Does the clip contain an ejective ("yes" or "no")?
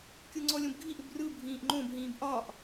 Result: no